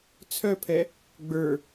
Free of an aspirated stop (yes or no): no